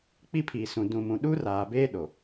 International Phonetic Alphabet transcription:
k͡pi˦pʰiː˨sũ˨ dũ˨mũ˨ ɗu˦r aː˨beː˦ɗo˨

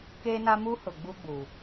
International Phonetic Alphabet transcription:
keː˦na˦muː˦ hʊ˨ɡ͡buː˦ɡ͡buː˨

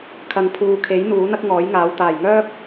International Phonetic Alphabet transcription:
kʰɐ˨ŋpʰuː˨kʰe˨˥j n̪uː˨˥n̪ɐ˥k̚ ŋɔː˨˥jŋaː˨˧w t̪aː˨˩jŋœː˥p̚

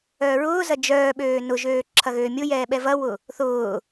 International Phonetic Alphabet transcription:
œːɹʊːzɐ d͡ʒœːɓøː nʊʒøː ǁʰɐɣøːmʲʊjɛː ɓɛvɐwʊ | θʊː

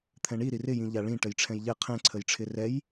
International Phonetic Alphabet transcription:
t̪ʰɛ̃ɳiɾi rɪjĩ ʎaɭĩ ʈəjʈ͡ʂʰɛ̃jʎɛ qʰɛ̃ǀʰəjʈ͡ʂʰɪ rɛj

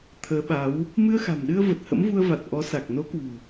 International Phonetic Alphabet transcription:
t̪ʰəː˨˦ɓa˨˦w | mɨ˧ə̯xa̤˨˩mɗɨ˧ə̯ və˨˩t̚hə̰˧˥mvu˧ə̯va˨˩t̚ ʔɔ˨˦sa˨˩k̚ no˨˦kwṳ˨˩

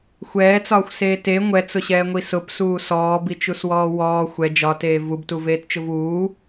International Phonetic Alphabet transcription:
xʷɛːt͡sɒːxʷseː te ŋʷɛt͡sʊɕɛːŋʷi sʊpsuː sɔːbit͡ʃuswɔː wɔː xʷɛ d͡ʒɒteː vubtuveːtt͡ʃʊv uː

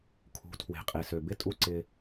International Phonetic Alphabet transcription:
kʰṳ˨˦tʰwe̤˨qʼe˨sø˨ bɪ˦˨tʼu˦˨ ǀɪ˦

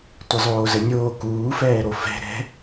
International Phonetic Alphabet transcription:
tʷəzˤoːzənʲoː kuːfɛːɾo fɛ̤ ɾɛ̤

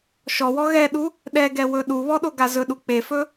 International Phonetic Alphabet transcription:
ʃɔwɔ ɣɛɗu | ɗɛɡɛ wɵɗuβɔ ɗoɡazɵɗu k͡pefɵ

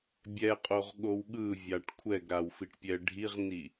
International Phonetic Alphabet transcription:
bʲɛqʼoʁɠow ɠɯvʲaʈ kʷʰɛɡɾawfiʈpʲɛ ɖʱiʁni

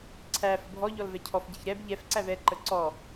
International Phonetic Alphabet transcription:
ǀʰæ fəbʱɔʎɔl vɛcʰɔfɟɛç ɾɛb ʎɛf ǀævɛǃə ǀɔ

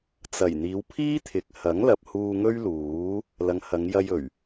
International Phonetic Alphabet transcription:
t͡sɐ˨˩j n̪iː˨˧wpʰiː˥t̪ʰɪ˨k̚ hɐ˨˥ŋlɐ˨p̚huː˧ ŋɵ˥ɥluː˨˥ | lɐ˨˧ŋhɐ˨˧ŋjɐ˧jɵ˨˩ɥ

